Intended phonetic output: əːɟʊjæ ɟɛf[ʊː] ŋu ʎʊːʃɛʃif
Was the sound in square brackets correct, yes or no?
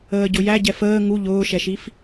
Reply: no